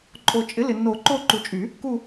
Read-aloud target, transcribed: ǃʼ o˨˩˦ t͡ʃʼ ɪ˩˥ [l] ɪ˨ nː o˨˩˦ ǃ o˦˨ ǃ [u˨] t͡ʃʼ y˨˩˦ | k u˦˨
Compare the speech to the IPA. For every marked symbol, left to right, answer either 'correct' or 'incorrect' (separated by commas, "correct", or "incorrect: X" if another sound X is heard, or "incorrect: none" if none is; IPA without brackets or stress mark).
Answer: correct, correct